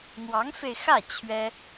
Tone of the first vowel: rising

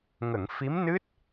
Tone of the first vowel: low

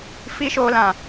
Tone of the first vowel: high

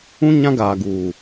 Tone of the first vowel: high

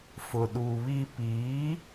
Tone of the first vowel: low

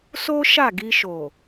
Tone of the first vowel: high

